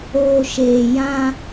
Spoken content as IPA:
oː˨ ʃ eː˨ j ã˦

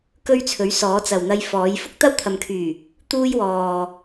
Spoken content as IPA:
k ɵ˥ ɥ t͡sʰ ɵ˨˥ ɥ s ɔː˨˥ t͡s ɐ˨ w n̪ ɐ˧ j f ɔː˨˥ j f ʊ˥ k̚ t̪ ɐ˥ w t̪ʰ ɐ˨ m kʰ yː˨˩ | t̪ uː˥ j w ɔː˨

